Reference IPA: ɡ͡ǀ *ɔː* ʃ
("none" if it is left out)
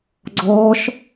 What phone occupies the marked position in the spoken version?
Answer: ɔː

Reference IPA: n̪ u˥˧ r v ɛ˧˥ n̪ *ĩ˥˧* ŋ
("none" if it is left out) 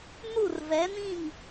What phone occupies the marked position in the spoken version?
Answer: ĩ˥˧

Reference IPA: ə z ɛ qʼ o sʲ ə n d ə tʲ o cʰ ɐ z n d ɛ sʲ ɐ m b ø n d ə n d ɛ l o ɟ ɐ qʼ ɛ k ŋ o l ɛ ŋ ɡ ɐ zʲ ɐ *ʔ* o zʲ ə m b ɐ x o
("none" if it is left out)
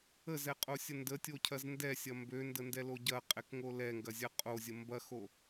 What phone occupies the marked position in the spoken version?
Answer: qʼ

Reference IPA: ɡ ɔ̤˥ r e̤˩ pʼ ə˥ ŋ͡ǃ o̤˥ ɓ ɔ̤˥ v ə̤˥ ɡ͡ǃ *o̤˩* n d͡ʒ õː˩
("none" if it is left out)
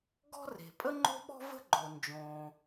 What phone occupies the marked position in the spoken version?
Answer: o˩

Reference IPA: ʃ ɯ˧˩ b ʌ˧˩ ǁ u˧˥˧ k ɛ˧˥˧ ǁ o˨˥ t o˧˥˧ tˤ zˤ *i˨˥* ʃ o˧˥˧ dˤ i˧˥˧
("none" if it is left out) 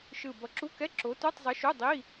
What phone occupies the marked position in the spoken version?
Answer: i˨˥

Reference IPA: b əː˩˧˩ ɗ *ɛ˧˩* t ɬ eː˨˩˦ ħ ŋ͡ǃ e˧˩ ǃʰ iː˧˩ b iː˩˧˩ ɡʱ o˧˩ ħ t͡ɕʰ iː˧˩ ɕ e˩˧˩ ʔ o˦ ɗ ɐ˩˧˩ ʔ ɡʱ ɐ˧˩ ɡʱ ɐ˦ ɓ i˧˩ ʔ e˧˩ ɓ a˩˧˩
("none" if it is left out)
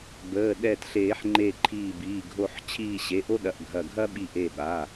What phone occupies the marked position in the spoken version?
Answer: ɛ˧˩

